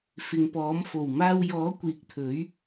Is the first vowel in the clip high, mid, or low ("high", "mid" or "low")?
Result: high